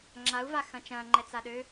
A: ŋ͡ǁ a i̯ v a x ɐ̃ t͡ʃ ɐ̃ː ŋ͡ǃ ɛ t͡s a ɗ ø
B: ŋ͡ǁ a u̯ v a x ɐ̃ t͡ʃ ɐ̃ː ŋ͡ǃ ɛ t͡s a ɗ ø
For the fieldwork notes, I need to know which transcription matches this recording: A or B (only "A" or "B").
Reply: B